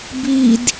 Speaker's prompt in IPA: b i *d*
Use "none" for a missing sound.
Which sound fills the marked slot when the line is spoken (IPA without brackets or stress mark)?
d